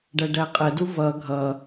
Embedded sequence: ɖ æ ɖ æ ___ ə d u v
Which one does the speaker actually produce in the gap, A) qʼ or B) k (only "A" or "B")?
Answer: A